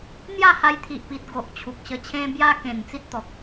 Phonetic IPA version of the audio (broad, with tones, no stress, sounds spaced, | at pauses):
n̪ j a˥˧ h a˧ j t̪ʰ i˨ ʔ p i˨ t̚ ɡ o˨ ʔ t͡ɕʰ u˨ k̚ ɕ ə˧ t͡ɕʰ ẽ˧ b j a˧ k ẽ˨˩ n t͡s i˦ t̚ t̪ ɔ˨ k̚